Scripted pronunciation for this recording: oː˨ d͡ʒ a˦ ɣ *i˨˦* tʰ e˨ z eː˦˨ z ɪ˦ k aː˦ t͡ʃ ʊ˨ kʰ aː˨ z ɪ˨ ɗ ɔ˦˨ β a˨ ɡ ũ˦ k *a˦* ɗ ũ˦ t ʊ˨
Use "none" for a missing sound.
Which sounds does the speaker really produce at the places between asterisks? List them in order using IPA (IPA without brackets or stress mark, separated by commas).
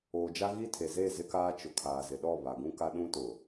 i˦, a˦